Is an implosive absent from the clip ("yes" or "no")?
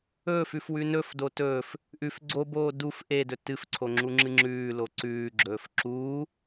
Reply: yes